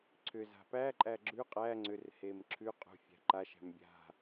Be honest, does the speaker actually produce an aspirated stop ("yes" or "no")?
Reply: yes